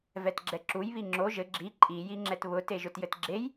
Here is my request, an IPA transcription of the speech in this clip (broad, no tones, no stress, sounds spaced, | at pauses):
v ɛ t ɡ͡ǁ ɛ ǁ u j β i ŋ͡ǁ o ʒ ɘ ɡ͡ǁ i ǃʼ i j i ŋ͡ǁ ɛ t β ʊ t e ʒ ʊ t j ɘ t ɡ͡ǁ e j